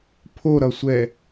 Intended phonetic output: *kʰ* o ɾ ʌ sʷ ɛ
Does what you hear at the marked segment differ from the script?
yes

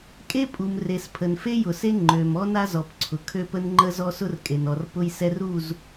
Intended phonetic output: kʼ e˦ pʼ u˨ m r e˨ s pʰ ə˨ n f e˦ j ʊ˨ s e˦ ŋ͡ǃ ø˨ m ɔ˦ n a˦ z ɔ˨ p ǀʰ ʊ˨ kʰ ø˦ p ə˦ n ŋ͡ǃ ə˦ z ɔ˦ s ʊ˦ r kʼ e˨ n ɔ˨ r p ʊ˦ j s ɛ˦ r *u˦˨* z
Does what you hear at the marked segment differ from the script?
no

